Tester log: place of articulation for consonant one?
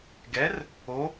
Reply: velar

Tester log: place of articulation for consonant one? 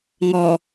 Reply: velar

